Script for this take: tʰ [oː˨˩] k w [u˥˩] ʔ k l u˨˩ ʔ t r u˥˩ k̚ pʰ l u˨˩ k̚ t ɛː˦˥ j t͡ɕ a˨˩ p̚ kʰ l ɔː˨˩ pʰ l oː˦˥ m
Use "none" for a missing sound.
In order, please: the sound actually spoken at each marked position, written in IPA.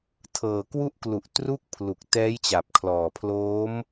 ɤː˨˩, u˥˩

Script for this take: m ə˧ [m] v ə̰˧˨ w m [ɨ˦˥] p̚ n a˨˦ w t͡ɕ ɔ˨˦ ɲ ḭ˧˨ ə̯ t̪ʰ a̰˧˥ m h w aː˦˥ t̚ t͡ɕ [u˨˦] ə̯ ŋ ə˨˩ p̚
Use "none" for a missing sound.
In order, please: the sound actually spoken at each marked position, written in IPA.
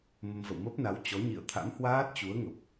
m, ə˦˥, u˨˦

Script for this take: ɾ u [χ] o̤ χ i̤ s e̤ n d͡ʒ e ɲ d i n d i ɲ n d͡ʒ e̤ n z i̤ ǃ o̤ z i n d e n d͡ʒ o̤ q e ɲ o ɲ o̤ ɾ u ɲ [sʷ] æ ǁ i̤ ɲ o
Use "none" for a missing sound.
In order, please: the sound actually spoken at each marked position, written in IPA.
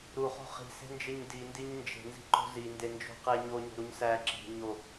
χ, s

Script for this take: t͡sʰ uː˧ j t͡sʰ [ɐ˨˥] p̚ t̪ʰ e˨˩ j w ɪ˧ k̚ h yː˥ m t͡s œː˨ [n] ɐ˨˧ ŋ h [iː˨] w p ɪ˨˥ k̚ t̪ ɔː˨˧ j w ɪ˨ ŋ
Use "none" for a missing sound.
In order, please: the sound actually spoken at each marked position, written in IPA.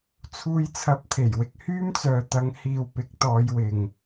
ɐ˨˥, t̪, iː˨

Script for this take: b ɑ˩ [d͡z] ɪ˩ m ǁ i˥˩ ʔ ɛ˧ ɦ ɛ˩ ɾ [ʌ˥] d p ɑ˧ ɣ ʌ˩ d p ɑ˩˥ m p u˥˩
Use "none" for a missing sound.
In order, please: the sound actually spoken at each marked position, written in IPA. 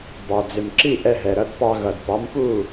d͡z, ʌ˧

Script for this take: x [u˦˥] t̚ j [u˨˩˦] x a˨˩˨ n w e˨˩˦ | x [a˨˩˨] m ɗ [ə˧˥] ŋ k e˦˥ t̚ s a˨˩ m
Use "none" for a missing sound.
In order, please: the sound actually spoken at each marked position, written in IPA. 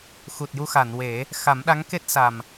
u˨˩, u˧, a˨˩˦, a˧˥

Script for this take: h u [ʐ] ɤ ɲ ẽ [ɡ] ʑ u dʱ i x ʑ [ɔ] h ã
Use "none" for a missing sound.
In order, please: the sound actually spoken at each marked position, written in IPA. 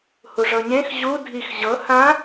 ʐ, x, ɤ

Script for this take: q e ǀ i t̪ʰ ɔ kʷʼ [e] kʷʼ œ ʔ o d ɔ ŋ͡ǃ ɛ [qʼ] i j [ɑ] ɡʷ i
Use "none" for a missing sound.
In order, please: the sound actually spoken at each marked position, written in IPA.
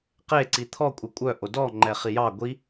e, χ, ɑ

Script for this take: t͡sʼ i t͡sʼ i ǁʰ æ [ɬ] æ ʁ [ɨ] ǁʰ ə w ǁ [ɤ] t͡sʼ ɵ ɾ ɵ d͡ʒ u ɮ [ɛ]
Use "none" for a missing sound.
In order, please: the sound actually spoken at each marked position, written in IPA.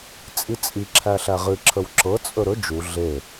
ɬ, ɨ, ɤ, e

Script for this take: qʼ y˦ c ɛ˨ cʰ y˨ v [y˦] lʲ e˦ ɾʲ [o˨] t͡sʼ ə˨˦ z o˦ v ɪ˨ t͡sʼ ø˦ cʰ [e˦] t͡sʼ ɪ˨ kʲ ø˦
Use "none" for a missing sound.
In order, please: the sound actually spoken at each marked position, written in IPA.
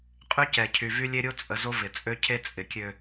y˦, o˦, e˦

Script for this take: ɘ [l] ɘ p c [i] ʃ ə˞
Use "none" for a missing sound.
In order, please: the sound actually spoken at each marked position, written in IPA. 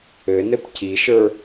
n, i

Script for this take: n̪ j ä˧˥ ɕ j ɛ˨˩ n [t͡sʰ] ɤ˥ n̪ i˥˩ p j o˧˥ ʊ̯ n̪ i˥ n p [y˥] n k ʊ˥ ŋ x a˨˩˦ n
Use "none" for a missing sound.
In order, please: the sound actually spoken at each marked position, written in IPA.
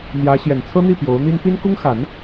t͡sʰ, i˥

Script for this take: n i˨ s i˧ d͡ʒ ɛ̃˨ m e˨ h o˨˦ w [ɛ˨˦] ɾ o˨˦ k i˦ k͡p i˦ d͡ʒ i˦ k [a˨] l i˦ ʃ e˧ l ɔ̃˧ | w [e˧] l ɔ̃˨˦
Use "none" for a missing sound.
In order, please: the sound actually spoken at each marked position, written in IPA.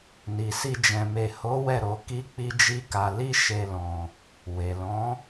ɛ˦˨, a˧, e˨

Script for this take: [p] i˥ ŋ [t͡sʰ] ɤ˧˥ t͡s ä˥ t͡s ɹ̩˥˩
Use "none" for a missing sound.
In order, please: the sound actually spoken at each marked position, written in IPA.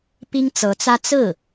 p, t͡s

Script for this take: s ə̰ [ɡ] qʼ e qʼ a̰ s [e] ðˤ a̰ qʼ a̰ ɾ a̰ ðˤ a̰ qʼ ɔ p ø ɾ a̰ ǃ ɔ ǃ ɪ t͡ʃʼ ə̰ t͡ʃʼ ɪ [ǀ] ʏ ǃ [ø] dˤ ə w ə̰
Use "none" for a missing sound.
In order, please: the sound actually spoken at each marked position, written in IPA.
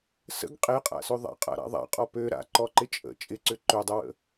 ɡ, ø, ǀ, ø

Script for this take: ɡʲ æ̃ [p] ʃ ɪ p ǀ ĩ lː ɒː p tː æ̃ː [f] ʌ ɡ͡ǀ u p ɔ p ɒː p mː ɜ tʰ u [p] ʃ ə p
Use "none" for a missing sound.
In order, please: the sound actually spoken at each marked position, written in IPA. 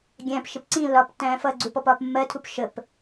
p, f, p

